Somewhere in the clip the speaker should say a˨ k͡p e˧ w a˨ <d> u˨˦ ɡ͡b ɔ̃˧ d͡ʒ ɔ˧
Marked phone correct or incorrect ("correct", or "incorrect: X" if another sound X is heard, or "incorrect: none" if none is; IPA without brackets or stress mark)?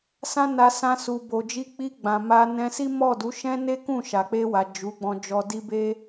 incorrect: d͡ʒ